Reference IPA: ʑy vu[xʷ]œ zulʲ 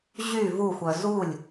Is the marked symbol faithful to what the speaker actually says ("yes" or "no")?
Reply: yes